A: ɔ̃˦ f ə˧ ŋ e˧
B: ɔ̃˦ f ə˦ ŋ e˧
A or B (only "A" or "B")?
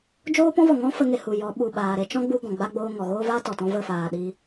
A